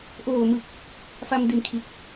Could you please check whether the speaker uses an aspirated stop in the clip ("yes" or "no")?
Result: yes